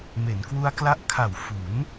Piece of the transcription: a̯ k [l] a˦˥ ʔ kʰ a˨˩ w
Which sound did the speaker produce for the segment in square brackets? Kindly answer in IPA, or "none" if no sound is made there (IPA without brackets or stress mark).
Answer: l